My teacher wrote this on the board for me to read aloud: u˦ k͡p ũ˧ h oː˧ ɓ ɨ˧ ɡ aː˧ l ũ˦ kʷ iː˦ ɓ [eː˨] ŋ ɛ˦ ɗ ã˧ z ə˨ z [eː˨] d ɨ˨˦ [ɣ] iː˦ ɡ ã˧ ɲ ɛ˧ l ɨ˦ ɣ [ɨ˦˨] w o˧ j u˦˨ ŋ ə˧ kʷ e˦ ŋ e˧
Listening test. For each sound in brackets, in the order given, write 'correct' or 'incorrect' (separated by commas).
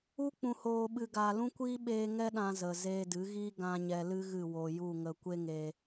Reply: incorrect, incorrect, correct, correct